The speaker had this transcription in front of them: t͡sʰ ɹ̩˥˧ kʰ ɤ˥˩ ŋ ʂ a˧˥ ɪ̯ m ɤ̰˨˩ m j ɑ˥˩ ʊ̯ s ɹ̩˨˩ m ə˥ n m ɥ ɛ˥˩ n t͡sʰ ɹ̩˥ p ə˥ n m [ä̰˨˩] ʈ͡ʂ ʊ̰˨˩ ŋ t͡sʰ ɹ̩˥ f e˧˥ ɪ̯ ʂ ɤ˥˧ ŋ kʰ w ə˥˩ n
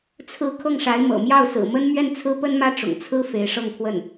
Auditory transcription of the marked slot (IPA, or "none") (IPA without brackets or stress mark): ä˥